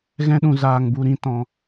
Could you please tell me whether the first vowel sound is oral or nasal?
nasal